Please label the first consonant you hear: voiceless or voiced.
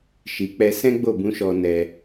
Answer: voiceless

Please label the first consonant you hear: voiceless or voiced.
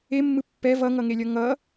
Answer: voiced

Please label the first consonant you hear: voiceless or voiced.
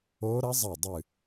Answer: voiced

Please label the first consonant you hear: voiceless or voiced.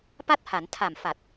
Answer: voiceless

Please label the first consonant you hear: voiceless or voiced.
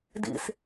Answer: voiced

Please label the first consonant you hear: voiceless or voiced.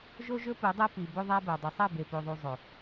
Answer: voiced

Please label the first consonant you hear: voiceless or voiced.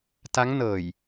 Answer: voiceless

